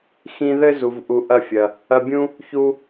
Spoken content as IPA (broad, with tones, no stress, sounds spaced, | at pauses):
x ĩ˧ ð ɘ˦ z u˨ v ʔ u˨˦ ʔ ɐ˦˨ fʲ ɐ˨ | ɐ˧ bʲ ũ˦ | ç u˧